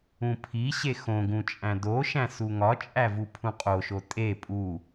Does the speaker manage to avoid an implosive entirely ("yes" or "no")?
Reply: yes